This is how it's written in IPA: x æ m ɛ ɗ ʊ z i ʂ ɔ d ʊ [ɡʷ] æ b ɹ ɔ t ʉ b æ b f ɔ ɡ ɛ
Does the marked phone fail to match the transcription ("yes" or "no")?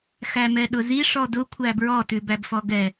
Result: yes